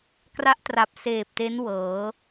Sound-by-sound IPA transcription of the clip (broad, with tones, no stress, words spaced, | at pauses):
kra˥˩ʔtra˨˩p̚ seː˨˩p̚te˦˥n wɤː˩˦